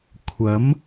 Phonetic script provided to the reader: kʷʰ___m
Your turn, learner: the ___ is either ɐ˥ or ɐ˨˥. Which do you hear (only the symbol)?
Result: ɐ˨˥